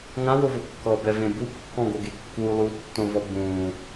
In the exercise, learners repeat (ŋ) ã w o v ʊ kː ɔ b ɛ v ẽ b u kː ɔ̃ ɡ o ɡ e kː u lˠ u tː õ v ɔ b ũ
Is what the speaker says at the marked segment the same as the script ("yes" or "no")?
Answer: yes